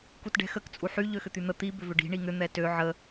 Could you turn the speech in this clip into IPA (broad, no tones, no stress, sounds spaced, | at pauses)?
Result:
k u t ɖ ɛ̤ x ə k t͡sʼ u ħ y ʎ ø x ʏ t̪ y n̪ ə t̪ i b ʏ v ʏ ɖ i̤ ɳ i ŋ ʏ n̪ ɛ t ø ʕ ə